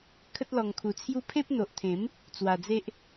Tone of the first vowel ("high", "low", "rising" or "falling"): high